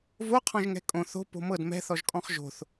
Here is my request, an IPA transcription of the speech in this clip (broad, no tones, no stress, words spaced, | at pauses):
voqʰɔ̃ʒŋɛ̤ kʼõ θo̤ po̤mɤd mɛ̤θɔʒkʼɔ̃χ ʒo̤θ